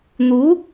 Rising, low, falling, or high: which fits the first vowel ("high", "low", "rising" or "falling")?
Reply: rising